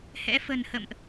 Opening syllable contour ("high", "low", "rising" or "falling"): rising